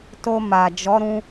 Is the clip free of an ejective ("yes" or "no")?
yes